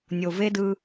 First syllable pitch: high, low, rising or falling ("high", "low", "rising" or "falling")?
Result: low